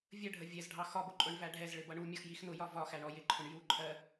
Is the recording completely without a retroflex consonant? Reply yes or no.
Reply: no